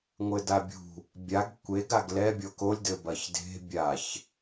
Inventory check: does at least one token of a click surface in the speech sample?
no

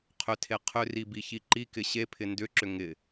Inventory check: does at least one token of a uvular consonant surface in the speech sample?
yes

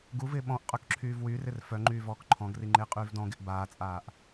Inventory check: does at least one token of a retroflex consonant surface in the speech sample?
no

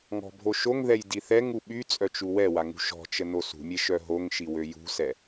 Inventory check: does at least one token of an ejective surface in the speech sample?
yes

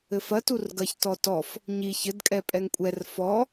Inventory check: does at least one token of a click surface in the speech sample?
no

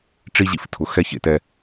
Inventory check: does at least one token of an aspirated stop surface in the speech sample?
yes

